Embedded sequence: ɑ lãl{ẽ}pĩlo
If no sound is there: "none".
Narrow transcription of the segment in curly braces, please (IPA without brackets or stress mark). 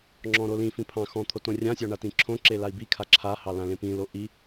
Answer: ẽ